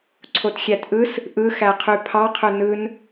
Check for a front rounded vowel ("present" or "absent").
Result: present